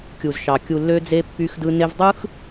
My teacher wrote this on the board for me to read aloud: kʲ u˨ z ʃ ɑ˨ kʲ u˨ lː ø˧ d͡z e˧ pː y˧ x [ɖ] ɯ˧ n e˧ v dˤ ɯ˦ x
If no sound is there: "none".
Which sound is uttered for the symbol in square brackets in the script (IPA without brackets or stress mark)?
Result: d